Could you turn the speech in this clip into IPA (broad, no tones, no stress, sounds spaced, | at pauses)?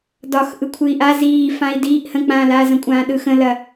d ɒ x ʔ ɯ kʷʰ ɨ i̯ ʔ a z iː f ã i̯ d iː ʔ h ə̃ k͡p ãː l aː z ɐ̃ kʷʼ ãː ɗ ɯ x ə̃ l ɐ